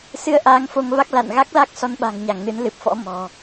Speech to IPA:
s ɨ˧ ə̯ ʔ aː˨˦ ŋ f o˧ ŋ v a˦˥ k̚ l a̰˧˨ n ɣ a˦˥ k̚ l a˦˥ k̚ s ɔ˧ n ɓ a̤˨˩ ŋ ɲ a˧˩ ŋ n ɨ˨˦ n l ɨ˨˩ p̚ f ɔ̰˧˥ m ɔ̤˨˩

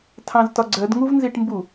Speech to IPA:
tʰ ɑ̃ z t ɒ ɡ͡ǀ ɜ d ŋ u v n z i ʈ m b u

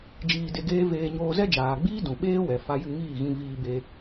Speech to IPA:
d͡ʒ iː˧ d e˧ ɡ eː˦ v eː˧ ɲ oː˧ z ɛ˦ d͡ʒ aː˨ ɡ͡b iː˦ d ũ˨ ɓ eː˦ w ɛ˨ f a˧ j ɨ˦˨ ŋ iː˦˨ ɣ ĩ˧ v iː˧ b e˧

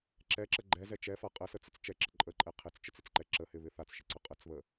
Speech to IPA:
ǁ ɛ ǁ ə ɡ͡ǃ ɛ z ɛ t͡ʃ ɛ f a qʼ ə s ə t͡s ɪ t͡s t͡ʃ ɛ ǁ ə ǃʼ ə ǃʼ ɛ qʰ ɪ t͡s t͡ʃ ə t͡s ɪ t͡s ǃ ɛ ǁ ə h ɪ β ɪ θ a t͡s ʃ ɪ ǀ ə qʼ ə t͡s β ə

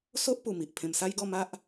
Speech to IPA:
s o˦ ʔ p u˨˩ m i˨ ʔ pʰ ẽ˧ m s a˦ j ɡ ɔ˥˧ m a˦ ʔ

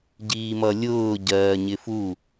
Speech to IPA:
ɟ iː m ʌ lʲ ʊː ɟ ɜː ɲ ɪ f u

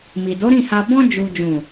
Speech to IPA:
m i˨ d o˨˦ ɾ ĩ˦˨ h a˧ b ɔ̃˧ d͡ʒ u˨ d͡ʒ ũ˨

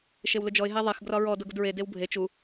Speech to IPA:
ʃ e w l ʊ d͡ʒ ɔ ɪ̯ ɦ e ðˤ e x ɡ r ɒ ɹ ɔ d ʊ ɡ ʊ d ɹ e d e w bʱ e t͡ʃ u

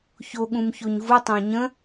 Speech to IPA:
ç o ɠ ũ m ç o ɲ v u tˤ ə̃ː ɲ ə̃

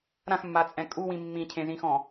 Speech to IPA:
ɾ ã x mː a t͡sʼ ɛ̃ kʼ u w ĩ mː ĩ cʰ ẽ z ĩ x ɔ̃

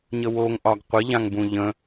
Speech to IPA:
ɲ ə w o ŋ ʔ ɒ ɡ qʷ ɪ ʎ ã ŋ b ũ ʎ ə̃

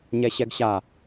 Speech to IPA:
ɲ ɛ ɕ ɛ ɡ ɕ a

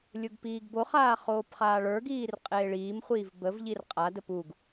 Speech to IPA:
lʲ ʊ ɡ p iː ɡ b o χ aː χ oː p χ aː ɭ ə˞ ɡ iː r qʼ eː ɭ iː m χʷ iː v b ə v ʎ i r qʼ a d ə p u ɡ

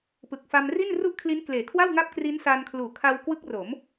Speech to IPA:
p ɯ˨˩ k̚ f a˧ m r i˥˩ n r u˥˩ ʔ kʰ l i˦˥ n k l eː˩˦ kʰ w a˥˩ w ŋ a˥˩ p̚ k r i˦˥ n s a˧ n kʰ l uː˨˩ kʰ a˧ w k w ɯ˦˥ k̚ r o˩˦ m

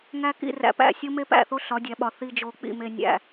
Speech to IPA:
ŋ æ˦ k ḭ˦˨ r æ̰˨˦ p æ̰˦˨ sʲ o˦ m e˦ p æ̰˦˨ θ o˦ ɬ ɒ˨˦ dʲ æ˨ ɓ ɒ˨ θ i˨ d͡ʒ o˨ k͡p ḭ˨ m e˨ nʲ æ̰˨

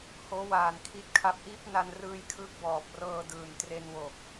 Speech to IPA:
h oː˦˥ w aː˨˩ n kʰ i˦˥ t̚ kʰ a˦˥ p̚ ʔ iː˦˥ p̚ n a˧ n r ɯː˧ j kʰ ɯː˦˥ k̚ b ɔː˨˩ p̚ r ɤː˧ d ɯː˨˩ n t r e˧ n w o˨˩ k̚

